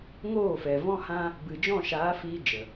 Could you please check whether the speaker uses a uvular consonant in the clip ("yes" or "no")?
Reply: no